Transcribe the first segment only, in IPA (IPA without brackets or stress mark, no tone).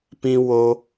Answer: p